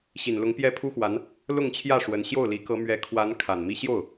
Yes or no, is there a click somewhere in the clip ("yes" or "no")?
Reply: no